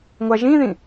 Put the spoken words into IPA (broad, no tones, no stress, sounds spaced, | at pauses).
ŋʷ a ʒ ĩ ð ĩ